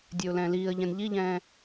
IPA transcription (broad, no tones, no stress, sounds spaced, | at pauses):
dʲ ø ʊ̯ l ɛ̃ː l iː ə̯ ʎ ɛ̃ n ʎ i ʎ ɛ̃ː